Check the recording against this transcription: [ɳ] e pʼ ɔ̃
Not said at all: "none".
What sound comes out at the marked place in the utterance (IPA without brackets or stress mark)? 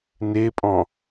n